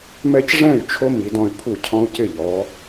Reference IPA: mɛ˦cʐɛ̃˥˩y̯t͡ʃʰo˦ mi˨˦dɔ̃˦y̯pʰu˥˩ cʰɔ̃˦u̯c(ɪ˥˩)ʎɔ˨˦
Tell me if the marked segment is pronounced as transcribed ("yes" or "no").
yes